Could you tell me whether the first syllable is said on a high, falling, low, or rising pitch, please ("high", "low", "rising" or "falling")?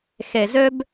low